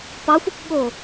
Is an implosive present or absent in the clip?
present